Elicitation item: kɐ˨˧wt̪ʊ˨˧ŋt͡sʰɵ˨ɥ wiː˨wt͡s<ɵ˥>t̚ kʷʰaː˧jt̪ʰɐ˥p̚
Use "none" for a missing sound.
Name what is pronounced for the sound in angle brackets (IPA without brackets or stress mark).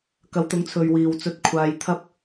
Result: ɵ˧